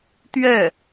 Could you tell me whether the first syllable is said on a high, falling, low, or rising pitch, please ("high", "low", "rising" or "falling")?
falling